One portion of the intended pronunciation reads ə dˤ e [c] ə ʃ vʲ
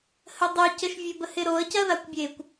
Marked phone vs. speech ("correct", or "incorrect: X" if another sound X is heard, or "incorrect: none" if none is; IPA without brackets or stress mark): correct